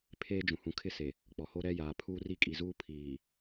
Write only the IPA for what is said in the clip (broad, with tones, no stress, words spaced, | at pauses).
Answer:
pʰeː˦d͡ʒũ˨ hũ˨kʰɪ˦se˨ | k͡pɔ˨ho˦ ɾɛ˦jaː˨ pʰuː˦ri˦ kʼi˨zuː˦ pʰiː˨